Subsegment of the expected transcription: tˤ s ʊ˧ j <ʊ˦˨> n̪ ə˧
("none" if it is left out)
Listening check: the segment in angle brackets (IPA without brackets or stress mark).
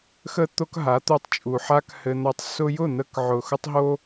ʊ˦˨